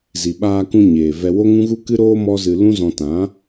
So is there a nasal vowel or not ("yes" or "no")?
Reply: yes